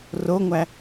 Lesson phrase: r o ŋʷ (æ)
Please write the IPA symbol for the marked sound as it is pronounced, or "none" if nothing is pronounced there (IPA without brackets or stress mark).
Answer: æ